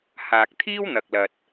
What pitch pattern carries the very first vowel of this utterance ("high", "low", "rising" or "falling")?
low